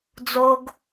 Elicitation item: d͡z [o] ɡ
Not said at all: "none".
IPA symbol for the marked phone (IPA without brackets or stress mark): o